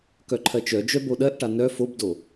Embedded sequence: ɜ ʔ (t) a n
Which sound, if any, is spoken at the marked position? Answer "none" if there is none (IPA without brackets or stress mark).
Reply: ʈ